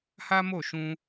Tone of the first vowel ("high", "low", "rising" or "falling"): high